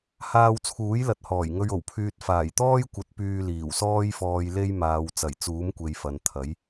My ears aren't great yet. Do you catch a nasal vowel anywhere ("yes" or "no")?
no